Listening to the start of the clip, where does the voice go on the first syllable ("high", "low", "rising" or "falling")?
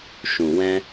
low